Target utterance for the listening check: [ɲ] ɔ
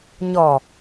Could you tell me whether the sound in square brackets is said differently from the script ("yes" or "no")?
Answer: no